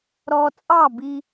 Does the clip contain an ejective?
yes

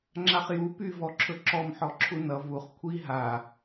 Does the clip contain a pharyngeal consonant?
yes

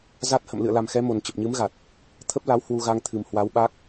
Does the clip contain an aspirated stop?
yes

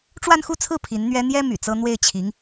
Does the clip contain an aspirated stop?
yes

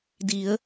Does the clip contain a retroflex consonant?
no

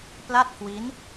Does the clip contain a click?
no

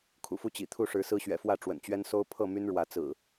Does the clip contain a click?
no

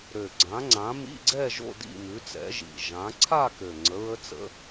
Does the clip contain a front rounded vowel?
yes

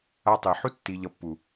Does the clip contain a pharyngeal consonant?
yes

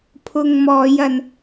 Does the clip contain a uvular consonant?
no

